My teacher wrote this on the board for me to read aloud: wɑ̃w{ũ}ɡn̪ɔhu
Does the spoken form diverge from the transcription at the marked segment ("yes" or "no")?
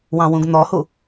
no